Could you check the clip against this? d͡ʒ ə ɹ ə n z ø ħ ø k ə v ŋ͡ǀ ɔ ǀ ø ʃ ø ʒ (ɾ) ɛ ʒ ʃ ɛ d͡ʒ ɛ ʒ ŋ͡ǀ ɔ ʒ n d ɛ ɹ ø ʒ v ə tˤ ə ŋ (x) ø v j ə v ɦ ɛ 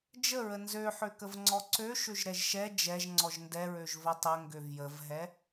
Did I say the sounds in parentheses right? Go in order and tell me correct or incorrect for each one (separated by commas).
correct, incorrect